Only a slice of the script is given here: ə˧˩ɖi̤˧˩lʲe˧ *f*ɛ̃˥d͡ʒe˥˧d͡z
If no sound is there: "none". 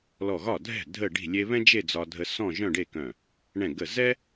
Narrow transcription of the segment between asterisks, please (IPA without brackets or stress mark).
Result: β